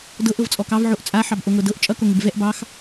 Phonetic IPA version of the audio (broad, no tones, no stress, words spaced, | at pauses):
dɤʔ ɤvt͡sʼɔkɑv ʕoʔt͡sʼa ħɑbʔoŋɤdɤʔ t͡ʃʼʌ koŋɪbvɛʔ bɑx